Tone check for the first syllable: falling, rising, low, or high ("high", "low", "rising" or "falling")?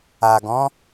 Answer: low